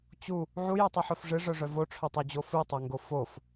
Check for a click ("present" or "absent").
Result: absent